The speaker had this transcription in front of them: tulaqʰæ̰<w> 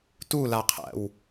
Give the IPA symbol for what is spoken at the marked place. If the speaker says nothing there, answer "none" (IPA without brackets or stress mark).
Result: w